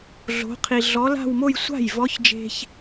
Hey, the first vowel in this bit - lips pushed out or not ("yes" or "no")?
yes